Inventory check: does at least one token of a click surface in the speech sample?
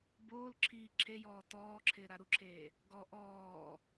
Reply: yes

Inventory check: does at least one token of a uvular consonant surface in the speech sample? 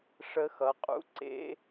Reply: yes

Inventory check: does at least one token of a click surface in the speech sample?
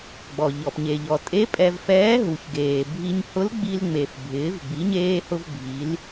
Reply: no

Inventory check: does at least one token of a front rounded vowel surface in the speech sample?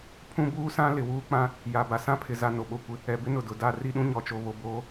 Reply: no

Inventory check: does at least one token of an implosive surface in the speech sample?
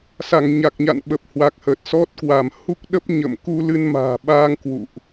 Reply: yes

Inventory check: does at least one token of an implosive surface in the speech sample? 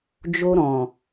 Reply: no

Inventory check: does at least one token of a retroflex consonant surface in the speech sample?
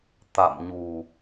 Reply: no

